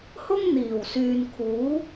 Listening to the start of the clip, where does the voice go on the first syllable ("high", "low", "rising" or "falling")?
high